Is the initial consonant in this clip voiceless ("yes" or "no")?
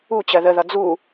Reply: yes